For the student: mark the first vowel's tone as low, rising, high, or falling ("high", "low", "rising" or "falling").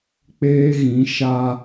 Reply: high